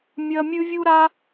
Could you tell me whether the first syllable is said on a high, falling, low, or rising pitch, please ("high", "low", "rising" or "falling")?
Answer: high